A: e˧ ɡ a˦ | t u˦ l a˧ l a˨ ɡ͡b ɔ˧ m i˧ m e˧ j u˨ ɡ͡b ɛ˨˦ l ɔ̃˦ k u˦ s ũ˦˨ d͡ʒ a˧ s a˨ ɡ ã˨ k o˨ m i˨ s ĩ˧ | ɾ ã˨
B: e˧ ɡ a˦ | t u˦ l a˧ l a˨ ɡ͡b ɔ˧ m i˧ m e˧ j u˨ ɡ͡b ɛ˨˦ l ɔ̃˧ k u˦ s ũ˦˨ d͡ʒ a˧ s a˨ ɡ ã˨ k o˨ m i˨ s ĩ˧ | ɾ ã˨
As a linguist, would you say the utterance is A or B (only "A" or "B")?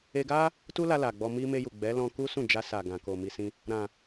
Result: B